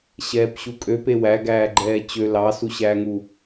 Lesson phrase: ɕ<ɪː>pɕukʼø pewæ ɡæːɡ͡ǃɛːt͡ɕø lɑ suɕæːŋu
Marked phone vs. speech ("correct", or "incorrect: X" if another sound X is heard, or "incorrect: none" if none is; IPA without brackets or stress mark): incorrect: ɛː